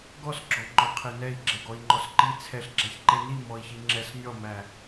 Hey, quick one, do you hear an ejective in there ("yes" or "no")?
no